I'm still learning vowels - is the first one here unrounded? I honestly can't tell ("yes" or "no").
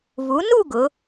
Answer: no